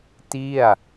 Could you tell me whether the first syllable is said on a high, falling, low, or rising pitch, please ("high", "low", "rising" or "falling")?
falling